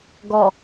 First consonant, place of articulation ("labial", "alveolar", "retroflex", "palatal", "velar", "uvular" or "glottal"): velar